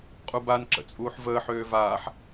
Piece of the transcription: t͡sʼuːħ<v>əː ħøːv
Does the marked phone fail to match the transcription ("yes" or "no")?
no